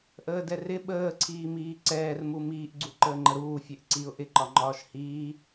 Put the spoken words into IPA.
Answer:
ʔəːdɛrɪ ɓəːǀʰiːmiː ǀɛːrmu miːʔɡ͡ǀu ǃəːŋ͡ǃəɾuː fʲɛʔǀiʊ̯ ʔɪǃɒŋ͡ǃɒːʃ hiː

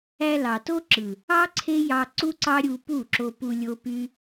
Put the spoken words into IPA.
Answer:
æ˧lɑ˨to˦ǁɯ˨ | ɑ˦ ǀʰe˦jɑ˧ ǀu˦ǀɑ˦ɾʲu˧ pu˦˨ǁo˧pu˧ lʲo˦py˦

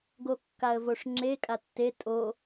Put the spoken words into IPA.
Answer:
ɡokːaə̯voʂŋ͡ǁe kʼatːe tʼo

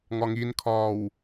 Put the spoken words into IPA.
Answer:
ŋɒŋinkʰɒːw

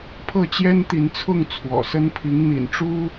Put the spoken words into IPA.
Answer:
pʰɤ˥˨t͡ɕjɛ˦nt̪i˨˦nt͡sʰʊ˥˨ŋ t͡sʰwɔ̰˨˩sə˦n pʰi˨˦ŋn̪ḭ˨˩nʈ͡ʂu˦

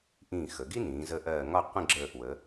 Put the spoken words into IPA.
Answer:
ʔĩː˧˩xə˩˧ɡi˥nĩː˩˧ zə˧ ʔɜː˧˩ŋɒ˥˧ qʷə̃˥˧ ɡ͡ǁəː˧˩ʔwə˩˧

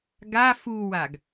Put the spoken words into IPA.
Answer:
ɡa fuwaɡ

